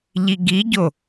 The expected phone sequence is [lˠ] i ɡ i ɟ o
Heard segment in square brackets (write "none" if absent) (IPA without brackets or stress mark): ʎ